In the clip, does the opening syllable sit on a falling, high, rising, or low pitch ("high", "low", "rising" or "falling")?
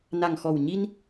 low